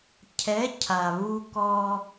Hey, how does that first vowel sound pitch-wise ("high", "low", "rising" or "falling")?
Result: rising